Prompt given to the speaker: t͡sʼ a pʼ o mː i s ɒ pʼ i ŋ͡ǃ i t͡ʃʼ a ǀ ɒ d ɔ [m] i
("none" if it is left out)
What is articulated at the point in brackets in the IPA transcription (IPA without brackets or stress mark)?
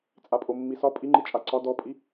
pʼ